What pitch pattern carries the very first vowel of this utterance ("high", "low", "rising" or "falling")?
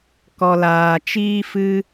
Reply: low